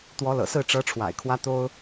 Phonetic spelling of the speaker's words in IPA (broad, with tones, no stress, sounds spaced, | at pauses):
t̪ w ɔ˧˥ l ɤ̰˨˩ s ɹ̩˥˩ ʈ͡ʂ ɤ˧˥ ʈ͡ʂʰ w a̰˨˩ ɪ̯ kʰ w ä˥ t̪ o˥ ʊ̯